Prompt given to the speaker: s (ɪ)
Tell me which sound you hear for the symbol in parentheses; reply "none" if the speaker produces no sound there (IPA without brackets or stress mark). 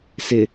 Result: ɪ